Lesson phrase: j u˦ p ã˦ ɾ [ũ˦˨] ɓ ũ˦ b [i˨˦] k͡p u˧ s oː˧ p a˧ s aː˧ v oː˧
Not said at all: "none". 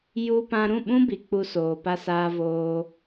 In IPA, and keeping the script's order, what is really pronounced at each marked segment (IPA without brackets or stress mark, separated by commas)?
ũ˦˨, i˨